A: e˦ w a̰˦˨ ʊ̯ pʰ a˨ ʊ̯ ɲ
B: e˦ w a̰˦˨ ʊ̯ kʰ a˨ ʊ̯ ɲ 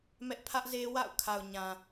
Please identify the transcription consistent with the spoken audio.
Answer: B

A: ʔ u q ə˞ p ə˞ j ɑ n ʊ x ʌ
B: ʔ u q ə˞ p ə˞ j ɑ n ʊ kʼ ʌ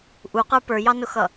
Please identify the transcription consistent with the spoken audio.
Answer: A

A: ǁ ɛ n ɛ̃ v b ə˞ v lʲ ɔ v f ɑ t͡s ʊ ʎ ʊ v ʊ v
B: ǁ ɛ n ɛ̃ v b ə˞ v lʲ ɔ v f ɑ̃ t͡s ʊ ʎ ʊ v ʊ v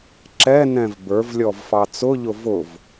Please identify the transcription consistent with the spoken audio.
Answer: A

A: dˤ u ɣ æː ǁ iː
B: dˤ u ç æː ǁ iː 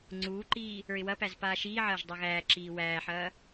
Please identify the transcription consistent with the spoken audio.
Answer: A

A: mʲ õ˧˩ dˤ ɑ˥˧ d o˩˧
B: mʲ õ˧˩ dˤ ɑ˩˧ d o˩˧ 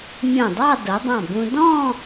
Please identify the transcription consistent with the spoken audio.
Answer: A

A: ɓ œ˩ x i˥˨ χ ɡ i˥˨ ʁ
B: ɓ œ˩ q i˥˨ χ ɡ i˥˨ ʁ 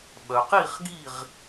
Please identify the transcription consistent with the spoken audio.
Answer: B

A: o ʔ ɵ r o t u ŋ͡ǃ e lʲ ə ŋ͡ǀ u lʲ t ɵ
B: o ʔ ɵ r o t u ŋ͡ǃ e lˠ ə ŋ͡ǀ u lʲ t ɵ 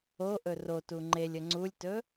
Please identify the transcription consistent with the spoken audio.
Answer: A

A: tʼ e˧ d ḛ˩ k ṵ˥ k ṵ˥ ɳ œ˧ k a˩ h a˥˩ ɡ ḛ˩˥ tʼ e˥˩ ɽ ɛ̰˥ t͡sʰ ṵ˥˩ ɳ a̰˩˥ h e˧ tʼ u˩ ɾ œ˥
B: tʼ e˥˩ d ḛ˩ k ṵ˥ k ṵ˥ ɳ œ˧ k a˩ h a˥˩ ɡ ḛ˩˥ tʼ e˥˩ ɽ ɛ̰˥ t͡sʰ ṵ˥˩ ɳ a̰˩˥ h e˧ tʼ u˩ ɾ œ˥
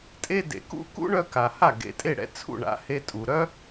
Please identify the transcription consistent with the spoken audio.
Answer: A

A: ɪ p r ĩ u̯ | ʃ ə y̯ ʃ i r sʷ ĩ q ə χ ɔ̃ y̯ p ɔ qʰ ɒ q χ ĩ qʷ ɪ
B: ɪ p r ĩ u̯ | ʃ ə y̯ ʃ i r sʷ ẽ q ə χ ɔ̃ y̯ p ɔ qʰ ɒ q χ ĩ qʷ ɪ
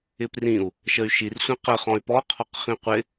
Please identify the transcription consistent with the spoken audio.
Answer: A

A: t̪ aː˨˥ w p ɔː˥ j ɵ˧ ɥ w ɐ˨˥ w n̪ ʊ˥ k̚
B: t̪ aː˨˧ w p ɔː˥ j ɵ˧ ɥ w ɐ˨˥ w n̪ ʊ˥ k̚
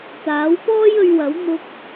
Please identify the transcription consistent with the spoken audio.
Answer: A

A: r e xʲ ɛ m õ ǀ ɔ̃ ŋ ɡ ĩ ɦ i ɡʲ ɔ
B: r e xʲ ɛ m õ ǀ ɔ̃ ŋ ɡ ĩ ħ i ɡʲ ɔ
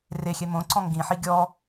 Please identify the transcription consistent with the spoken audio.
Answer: B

